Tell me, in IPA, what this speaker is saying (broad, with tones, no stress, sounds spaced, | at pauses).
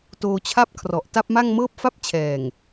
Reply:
t oː˧ t͡ɕʰ a˥˩ p̚ kʰ r ɔ˨˩ ʔ t a˥˩ p̚ m a˥˩ ŋ m ɤː˥˩ p̚ f a˥˩ p̚ t͡ɕʰ ɛː˨˩ ŋ